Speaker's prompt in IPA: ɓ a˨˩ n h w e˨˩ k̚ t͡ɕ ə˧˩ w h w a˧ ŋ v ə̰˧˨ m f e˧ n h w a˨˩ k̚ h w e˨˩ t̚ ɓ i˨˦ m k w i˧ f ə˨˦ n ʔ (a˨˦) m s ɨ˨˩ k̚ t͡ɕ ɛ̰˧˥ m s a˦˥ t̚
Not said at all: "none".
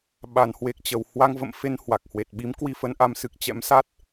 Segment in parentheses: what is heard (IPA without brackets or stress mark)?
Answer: a˨˦